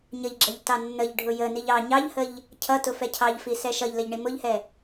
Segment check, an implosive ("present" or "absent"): absent